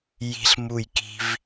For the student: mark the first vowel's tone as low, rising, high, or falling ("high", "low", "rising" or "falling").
high